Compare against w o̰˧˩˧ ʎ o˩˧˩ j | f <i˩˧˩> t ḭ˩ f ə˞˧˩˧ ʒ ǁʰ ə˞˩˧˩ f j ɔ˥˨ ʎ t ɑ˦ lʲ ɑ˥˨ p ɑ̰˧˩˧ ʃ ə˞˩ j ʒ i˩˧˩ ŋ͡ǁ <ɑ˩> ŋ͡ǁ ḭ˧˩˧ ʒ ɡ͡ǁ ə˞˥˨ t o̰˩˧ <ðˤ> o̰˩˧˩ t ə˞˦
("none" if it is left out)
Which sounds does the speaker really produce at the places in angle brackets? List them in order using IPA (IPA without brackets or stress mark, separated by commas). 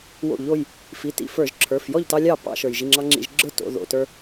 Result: i˩˧˩, ɑ˦, ð